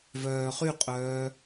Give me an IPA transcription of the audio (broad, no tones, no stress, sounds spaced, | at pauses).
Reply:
v œː χ y qʼ œː